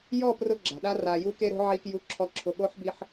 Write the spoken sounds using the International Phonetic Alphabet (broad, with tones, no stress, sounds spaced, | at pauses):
j ɔ˦˨ p r ʊ˦ ɡ͡ǁ a̤˨ ɗ a˦ r a˨ j u˦ k e˦ ɾ o̤˦ ʕ i˦ k j u˦ ǁʰ ɔ˦ ǁʰ ʊ˨ ɠ o˦ ħ b i˦ ħ